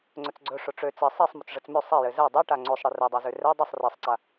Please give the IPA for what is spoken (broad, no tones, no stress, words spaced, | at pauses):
ŋ͡ǀɵt͡sɡ͡ǀɵ ʂʊʈ͡ʂø t͡sɘ sˤɛsˤ mʊt͡sʐɘt͡smø sˤɛjɘ zɛ dˤɛʈa ŋ͡ǀosˤɽɘ rɛdˤazø rɛ dˤɛsˤ risˤǀa